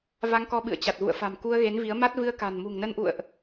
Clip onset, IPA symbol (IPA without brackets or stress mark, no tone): v